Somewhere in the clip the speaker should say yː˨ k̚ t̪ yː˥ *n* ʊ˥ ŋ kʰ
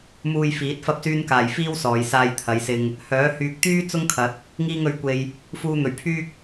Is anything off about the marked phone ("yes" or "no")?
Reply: yes